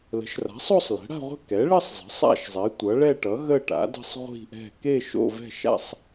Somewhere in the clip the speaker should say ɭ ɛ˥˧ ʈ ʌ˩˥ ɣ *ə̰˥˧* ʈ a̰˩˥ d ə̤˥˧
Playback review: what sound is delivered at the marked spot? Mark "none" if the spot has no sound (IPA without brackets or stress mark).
ə˥˧